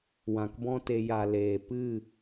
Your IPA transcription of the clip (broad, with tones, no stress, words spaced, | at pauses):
wã˨kbɔ̃˦te˧ ja˨ leː˨ pɨ˦˨